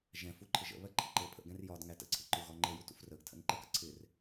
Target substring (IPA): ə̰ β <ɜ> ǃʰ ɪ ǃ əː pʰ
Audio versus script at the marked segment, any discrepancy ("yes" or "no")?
no